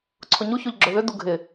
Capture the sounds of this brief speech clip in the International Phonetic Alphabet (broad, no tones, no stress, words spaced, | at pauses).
ǀʰʊɲuçoʎ ɡ͡ǁʊðʏdu ɡʱɪ